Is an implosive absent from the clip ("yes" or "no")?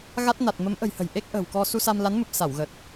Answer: yes